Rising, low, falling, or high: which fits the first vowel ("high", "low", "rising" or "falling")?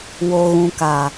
low